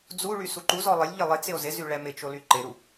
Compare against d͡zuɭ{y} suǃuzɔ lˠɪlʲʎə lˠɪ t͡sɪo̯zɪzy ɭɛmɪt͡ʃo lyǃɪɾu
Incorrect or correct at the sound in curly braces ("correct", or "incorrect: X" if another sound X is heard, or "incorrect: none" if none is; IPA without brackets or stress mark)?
correct